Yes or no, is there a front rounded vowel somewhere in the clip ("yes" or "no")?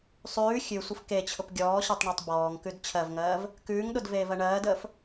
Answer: no